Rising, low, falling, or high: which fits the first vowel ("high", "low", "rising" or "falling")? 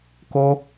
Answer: high